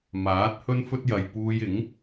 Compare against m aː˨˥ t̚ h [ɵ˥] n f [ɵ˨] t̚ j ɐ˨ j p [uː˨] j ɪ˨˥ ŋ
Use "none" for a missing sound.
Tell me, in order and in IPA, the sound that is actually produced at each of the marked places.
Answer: ɵ˥, ɵ˥, uː˧

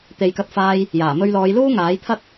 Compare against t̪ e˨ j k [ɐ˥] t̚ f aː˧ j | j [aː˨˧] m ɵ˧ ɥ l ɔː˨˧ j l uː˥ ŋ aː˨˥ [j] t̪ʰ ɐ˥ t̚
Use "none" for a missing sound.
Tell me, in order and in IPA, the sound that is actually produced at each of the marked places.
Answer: ɐ˧, aː˨˩, j

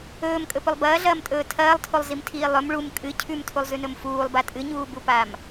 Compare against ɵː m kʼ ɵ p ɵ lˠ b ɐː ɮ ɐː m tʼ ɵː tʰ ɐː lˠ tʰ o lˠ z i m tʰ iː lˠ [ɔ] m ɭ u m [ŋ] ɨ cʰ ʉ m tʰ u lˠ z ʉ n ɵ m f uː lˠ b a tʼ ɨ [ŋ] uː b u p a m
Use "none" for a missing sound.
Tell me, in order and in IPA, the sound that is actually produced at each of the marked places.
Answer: ɵ, kʼ, ɲ

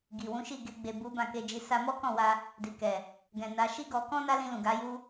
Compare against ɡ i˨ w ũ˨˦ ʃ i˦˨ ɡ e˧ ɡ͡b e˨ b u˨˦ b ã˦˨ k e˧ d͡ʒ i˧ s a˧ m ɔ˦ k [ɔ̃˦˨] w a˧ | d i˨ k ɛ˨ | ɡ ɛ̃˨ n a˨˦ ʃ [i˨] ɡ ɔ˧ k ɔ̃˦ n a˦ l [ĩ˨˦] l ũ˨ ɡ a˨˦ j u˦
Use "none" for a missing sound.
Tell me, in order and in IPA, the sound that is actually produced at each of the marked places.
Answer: ɔ̃˦˨, i˦, ĩ˧

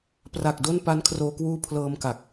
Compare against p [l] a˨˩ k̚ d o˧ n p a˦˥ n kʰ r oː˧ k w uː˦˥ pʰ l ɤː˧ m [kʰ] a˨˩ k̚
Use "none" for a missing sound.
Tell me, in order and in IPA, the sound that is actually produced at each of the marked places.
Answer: r, k

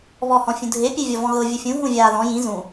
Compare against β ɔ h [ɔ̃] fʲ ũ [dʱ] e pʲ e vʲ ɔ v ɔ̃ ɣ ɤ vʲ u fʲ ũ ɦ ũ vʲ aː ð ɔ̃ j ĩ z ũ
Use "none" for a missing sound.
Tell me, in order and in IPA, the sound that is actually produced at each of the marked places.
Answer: ɔ̃, dʱ

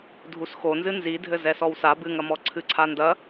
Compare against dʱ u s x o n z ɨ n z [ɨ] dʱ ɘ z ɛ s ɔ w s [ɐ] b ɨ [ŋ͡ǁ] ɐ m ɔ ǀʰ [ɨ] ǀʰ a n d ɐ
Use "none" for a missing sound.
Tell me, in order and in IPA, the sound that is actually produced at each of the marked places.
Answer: i, a, ŋ, ɨ

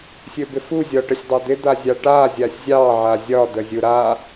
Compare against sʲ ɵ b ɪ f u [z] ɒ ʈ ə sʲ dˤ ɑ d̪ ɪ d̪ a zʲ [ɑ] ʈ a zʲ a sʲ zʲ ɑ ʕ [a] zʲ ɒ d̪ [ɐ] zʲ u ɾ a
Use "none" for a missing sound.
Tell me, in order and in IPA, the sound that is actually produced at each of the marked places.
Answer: zʲ, ɑ, a, ə

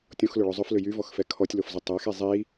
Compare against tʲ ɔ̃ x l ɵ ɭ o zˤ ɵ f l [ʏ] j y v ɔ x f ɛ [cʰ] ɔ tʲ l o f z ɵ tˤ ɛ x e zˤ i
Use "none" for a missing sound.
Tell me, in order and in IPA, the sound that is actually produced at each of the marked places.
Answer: ʏ, kʰ

